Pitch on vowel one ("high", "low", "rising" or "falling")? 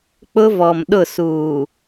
high